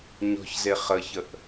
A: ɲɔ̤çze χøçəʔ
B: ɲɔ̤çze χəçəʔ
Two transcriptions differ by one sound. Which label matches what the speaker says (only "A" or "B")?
B